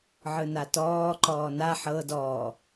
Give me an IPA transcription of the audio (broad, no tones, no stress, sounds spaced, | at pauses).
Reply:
ʕ ɯ n a t ɔː ǃ ɔː n a ħ ɤ d ɔː